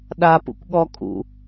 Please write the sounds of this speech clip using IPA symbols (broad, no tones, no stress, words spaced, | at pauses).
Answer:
ɗapṵkʷɠɔ kʼṵ